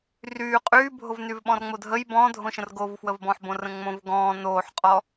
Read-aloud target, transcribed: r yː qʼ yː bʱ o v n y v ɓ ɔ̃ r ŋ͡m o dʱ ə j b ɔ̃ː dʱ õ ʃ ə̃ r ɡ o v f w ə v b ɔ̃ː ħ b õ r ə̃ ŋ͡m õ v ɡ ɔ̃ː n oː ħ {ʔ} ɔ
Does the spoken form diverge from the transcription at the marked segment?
yes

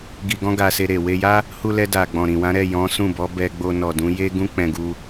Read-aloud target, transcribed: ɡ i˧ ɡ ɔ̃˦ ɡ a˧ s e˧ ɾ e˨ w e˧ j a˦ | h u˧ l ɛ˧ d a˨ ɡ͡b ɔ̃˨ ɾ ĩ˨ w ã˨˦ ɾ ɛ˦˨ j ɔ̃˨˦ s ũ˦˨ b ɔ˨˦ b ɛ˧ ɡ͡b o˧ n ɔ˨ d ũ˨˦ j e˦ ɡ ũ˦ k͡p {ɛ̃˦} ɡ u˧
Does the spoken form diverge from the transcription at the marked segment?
yes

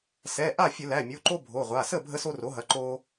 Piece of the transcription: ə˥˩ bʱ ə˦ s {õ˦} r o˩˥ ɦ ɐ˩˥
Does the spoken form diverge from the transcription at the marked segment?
yes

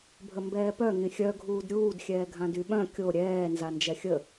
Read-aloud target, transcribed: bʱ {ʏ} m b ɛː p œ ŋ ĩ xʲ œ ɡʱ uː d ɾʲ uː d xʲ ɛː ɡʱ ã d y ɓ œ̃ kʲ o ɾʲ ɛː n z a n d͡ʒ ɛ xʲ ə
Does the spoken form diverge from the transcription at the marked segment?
yes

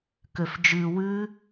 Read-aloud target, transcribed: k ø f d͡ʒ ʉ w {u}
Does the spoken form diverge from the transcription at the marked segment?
yes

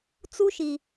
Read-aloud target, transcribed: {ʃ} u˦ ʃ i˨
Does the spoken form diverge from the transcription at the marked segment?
yes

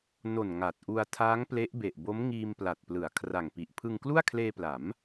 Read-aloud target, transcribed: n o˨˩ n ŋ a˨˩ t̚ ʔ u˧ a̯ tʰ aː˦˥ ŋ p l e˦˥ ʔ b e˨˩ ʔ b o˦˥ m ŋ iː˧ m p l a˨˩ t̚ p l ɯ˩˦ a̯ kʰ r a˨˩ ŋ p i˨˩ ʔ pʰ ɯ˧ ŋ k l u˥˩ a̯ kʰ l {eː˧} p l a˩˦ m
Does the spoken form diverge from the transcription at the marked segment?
no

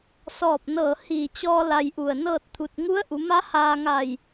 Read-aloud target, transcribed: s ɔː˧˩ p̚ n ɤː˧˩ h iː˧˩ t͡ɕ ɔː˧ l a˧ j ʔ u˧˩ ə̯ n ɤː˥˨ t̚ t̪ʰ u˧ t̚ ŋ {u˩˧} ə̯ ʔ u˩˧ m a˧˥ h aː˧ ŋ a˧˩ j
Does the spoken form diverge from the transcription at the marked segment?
yes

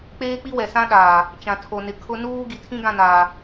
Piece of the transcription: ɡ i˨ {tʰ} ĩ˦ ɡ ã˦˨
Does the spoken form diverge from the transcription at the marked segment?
no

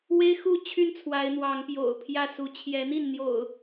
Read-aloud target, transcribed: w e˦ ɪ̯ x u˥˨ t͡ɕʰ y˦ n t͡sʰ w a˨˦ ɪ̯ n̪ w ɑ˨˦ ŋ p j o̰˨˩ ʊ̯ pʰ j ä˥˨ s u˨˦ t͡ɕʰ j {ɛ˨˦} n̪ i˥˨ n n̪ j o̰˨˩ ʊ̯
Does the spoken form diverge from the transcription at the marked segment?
no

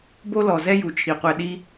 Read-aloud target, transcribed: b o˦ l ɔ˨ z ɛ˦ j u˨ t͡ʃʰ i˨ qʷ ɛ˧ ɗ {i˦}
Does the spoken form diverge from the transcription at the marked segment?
no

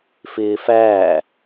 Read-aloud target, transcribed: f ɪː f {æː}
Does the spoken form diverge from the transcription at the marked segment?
no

